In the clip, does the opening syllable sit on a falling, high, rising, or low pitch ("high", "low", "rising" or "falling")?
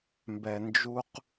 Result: low